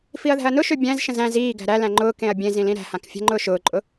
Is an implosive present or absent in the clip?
absent